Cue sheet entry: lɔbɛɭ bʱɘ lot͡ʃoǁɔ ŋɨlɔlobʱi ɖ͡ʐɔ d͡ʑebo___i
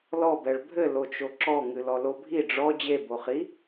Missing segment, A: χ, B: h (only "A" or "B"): A